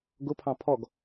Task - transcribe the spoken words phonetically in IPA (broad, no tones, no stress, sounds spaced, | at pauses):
ɡ ʊ pʰ ɑ̃ pʰ ɔ ɡ